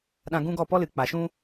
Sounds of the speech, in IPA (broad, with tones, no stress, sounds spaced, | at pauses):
ɗ ã˧ ɡ ũ˦ ɡ ɔ˦˨ p ɔ˦ l ɨ˨ k͡p a˨ ʃ ũ˦